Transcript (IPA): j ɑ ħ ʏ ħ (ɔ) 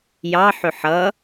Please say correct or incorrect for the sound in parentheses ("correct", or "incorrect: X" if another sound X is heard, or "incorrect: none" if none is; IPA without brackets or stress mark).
incorrect: ʌ